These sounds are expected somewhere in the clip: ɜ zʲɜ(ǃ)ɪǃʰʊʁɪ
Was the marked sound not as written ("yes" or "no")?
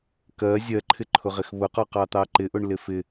yes